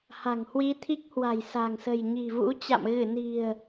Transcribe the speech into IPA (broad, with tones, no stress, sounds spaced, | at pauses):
h a̤˨˩ ŋ h w i˧ t̪ʰ i˦˥ k̚ h w a̤˨˩ j s a̤˨˩ ŋ s ə̤˨˩ j ɲ i̤˨˩ v ṵ˧˥ t͡ɕ a̰˧˨ m ɣ ɨ˧˩ n i̤˨˩ ə̯